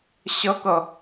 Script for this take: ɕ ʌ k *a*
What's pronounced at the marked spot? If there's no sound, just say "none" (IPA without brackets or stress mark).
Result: ʌ